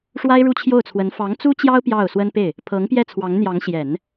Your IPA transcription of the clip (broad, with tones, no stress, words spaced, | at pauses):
ʂwa˥ɪ̯ɻu˥˧t͡ɕʰjo˥˩ʊ̯t͡sʰwə˧˥n fɑ˧˥ŋt͡su˥t͡ɕjɑ˥ʊ̯ pjɑ˥˩ʊ̯swə˥npe˥˩ɪ̯ | pʰɤ˧˥ŋpjɛ˥˩t͡sʰwɑ˧˥ŋn̪jɑ˧˥ŋ ɕjɛ˨˩˦n